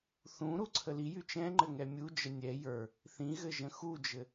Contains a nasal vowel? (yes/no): yes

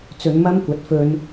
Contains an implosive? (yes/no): no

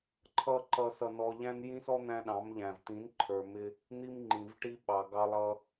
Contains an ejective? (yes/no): no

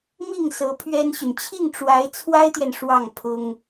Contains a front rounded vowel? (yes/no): yes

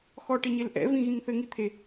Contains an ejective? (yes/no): no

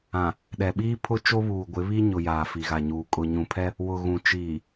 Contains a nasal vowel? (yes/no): yes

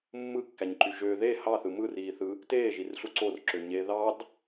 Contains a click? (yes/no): yes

